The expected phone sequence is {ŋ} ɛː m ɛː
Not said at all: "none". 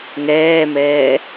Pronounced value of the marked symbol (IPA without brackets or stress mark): ŋ